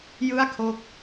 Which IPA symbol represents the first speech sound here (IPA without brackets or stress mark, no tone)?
j